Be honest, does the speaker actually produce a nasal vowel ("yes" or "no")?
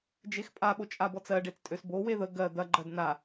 no